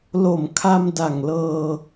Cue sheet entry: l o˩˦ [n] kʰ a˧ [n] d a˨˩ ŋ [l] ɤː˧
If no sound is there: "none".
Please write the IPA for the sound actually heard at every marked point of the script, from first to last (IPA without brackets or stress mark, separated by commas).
m, m, l